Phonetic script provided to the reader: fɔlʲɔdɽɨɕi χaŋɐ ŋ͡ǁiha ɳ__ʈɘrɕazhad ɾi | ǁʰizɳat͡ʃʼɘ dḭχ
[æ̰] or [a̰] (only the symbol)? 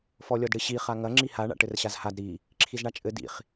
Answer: a̰